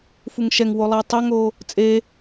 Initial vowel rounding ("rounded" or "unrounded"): rounded